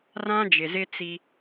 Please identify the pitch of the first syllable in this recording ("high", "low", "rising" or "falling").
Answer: high